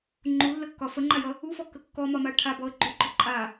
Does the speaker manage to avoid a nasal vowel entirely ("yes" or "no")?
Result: yes